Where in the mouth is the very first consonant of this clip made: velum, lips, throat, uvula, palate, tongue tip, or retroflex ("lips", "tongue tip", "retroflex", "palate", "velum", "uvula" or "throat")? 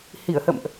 throat